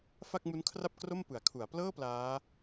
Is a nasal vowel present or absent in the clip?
absent